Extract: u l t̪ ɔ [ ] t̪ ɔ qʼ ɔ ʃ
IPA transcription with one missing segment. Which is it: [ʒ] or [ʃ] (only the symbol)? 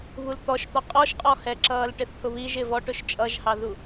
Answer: ʃ